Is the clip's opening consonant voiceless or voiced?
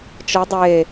voiceless